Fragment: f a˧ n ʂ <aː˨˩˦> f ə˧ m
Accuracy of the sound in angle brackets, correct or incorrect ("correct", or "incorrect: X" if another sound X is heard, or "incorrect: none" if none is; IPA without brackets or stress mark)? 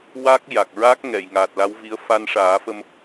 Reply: correct